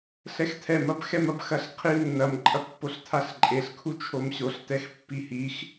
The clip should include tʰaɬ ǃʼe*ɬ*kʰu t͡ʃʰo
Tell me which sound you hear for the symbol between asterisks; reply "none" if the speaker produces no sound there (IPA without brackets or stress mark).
ɬ